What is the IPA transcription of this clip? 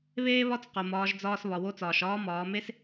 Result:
β eː˥ β ɒ˥ t͡s q o˩ m ɒː˩˧ ʒ d͡z ɒː˧ s β ɒ˩ w o˧ t͡s ɒː˩ ʃ ɒː˧˥ m ɒː˩˧ m e˥ s

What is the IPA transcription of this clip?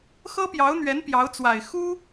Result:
x ɤ˥ p j ɑ˧˥ ʊ̯ n̪ ɥ ɛ˧˥ n p j ɑ˧˥ ʊ̯ t͡s w a˨˩ ɪ̯ x u˥

